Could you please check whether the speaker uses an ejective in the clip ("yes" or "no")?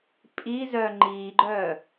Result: yes